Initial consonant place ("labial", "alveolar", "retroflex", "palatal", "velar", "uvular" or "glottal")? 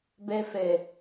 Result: labial